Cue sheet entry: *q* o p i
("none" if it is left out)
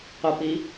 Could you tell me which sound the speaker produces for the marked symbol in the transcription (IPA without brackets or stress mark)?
q